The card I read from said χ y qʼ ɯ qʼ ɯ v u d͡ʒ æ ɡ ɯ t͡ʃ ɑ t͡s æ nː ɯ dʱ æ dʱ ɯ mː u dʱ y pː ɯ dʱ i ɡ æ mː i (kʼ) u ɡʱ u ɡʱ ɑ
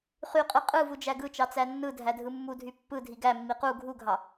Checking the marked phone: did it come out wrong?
yes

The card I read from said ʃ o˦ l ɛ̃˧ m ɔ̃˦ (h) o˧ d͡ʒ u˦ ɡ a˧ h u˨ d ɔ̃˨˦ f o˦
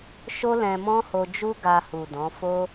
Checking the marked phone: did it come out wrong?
no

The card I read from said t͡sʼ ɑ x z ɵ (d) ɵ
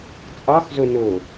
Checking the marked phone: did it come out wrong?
yes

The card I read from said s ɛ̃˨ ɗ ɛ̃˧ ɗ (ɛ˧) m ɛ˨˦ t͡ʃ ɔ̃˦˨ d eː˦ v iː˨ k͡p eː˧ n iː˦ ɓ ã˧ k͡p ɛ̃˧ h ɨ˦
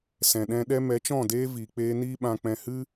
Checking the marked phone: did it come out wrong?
yes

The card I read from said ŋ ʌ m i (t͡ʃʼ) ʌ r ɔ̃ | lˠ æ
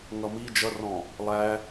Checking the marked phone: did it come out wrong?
yes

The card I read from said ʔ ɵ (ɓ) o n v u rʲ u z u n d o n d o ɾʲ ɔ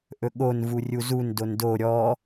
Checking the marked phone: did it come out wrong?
yes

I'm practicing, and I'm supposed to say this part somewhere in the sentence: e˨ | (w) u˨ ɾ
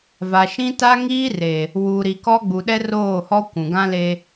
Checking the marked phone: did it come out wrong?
no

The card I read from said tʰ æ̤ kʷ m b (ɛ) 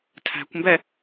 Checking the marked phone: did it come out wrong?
no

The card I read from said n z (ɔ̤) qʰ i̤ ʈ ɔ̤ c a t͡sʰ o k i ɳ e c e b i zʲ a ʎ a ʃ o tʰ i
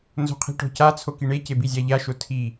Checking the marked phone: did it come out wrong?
yes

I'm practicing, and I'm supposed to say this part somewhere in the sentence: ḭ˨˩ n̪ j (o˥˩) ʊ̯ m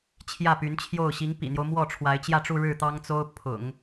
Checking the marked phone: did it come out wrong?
yes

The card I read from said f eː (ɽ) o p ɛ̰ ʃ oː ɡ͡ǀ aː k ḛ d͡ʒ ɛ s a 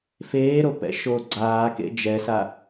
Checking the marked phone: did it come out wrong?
yes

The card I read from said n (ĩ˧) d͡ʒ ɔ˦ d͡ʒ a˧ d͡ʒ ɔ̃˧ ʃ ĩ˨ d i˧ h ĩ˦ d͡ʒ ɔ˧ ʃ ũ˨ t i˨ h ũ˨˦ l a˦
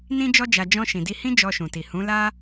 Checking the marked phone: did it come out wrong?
yes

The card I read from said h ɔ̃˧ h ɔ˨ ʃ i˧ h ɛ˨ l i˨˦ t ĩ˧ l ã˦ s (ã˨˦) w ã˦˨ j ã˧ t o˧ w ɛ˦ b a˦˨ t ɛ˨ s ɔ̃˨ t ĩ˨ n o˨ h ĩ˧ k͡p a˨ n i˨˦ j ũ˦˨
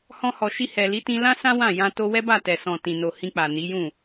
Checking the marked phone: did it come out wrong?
yes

